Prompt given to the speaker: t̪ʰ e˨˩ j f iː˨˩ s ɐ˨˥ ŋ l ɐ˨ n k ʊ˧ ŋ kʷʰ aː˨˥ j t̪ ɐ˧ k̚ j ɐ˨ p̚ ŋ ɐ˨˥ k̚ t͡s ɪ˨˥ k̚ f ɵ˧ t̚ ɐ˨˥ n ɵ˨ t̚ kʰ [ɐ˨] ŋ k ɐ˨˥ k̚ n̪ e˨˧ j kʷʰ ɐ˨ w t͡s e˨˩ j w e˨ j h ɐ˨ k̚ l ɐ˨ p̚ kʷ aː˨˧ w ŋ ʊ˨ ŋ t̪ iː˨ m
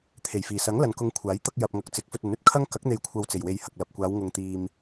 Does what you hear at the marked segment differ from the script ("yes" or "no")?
yes